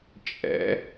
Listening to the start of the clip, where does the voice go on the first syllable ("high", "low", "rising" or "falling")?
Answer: rising